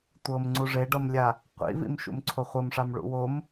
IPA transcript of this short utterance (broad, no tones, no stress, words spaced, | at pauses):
tʷɤmŋ͡ǀu ʐeɖɤmlʲa | qʷḭvḭm ʃṵmǀʰoχʷɤmʂam ɭṵwom